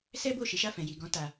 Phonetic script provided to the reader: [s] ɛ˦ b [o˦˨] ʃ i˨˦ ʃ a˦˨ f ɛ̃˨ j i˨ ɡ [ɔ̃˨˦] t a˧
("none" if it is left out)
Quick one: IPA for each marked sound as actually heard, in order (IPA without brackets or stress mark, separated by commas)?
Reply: s, o˦˨, ɔ̃˨˦